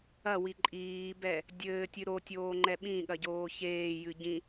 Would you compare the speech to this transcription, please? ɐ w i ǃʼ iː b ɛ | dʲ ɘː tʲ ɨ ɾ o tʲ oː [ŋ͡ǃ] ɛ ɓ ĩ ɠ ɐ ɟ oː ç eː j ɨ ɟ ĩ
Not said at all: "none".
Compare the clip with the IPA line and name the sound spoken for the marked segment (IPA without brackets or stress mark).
ŋ͡ǃ